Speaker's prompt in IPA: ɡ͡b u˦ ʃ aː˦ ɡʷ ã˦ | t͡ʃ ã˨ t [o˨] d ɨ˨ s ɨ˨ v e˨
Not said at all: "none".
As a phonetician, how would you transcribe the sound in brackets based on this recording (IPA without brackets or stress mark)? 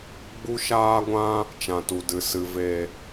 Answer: u˨